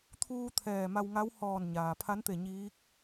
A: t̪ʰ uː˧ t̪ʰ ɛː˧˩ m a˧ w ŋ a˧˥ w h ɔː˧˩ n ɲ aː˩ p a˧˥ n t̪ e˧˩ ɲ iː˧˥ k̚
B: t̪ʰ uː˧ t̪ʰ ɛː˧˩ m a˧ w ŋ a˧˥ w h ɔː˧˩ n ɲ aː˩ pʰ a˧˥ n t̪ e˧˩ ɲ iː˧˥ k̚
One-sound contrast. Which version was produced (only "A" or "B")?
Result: B